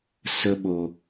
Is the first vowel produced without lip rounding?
yes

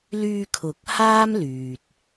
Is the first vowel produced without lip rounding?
no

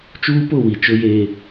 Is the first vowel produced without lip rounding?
no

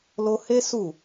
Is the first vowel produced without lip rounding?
no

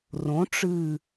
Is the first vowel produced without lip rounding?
no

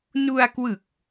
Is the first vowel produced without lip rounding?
no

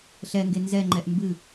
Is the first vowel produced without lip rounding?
yes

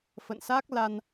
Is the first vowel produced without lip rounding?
yes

